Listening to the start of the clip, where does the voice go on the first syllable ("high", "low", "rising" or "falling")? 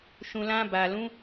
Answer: low